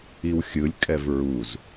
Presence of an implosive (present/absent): absent